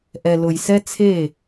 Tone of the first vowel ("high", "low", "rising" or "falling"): low